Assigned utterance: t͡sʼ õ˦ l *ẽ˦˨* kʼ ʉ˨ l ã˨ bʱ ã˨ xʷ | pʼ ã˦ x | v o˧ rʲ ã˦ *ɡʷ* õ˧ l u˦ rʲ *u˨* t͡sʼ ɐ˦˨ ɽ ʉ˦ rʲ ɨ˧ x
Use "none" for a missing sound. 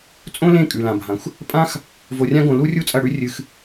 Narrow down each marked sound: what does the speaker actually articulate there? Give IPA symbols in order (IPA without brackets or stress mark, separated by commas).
ẽ˦˨, ɡ, u˦